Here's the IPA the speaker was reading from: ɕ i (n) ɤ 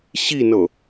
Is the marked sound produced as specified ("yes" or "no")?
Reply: yes